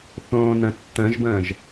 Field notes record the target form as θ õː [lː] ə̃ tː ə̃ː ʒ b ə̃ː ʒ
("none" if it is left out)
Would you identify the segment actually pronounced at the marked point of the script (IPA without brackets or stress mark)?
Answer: n